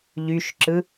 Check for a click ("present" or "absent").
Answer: present